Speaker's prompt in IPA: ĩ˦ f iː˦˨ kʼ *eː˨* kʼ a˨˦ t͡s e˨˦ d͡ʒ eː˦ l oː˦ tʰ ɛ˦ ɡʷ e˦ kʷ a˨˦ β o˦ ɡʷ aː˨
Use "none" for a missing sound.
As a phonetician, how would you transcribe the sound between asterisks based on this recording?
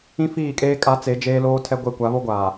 eː˦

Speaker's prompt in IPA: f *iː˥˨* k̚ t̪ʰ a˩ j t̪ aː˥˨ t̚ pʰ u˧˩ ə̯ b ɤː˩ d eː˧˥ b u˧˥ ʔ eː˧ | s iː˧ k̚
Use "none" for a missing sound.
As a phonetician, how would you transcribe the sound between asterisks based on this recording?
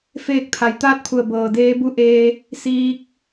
eː˥˨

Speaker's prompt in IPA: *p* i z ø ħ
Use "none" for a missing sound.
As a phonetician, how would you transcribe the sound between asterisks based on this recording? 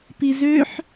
p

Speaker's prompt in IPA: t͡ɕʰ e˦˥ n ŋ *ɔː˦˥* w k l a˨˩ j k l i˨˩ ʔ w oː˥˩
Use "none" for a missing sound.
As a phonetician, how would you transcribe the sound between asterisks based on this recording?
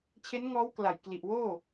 ɔː˦˥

